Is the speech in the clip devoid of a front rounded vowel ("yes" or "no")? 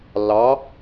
yes